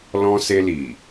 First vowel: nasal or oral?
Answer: nasal